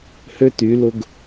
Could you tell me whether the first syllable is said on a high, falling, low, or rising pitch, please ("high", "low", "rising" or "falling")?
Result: high